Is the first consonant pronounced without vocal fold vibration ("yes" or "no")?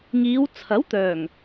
no